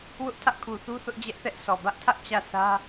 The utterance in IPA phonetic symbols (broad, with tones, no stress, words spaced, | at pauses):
wʊ˦ʔtʰä˦ʔkʰu˨θu˦ θʊ˦ʔd͡ʑɛ˦ʔθɛ˦ʔ sɔ˨ bä˦ʔtʰä˦ʔ t͡ɕä˦˨ sä˦